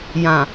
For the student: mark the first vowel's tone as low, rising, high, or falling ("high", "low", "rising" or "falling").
low